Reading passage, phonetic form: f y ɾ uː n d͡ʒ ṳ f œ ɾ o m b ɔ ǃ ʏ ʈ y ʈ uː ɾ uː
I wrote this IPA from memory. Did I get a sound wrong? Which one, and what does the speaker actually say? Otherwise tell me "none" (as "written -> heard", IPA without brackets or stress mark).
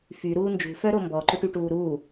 none